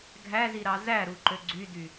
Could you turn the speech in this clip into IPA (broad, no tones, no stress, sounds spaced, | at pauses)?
ɡʱ æ z i ɾ ɑ z æ ɾ u ǃ ø ɡ͡ǀ y d y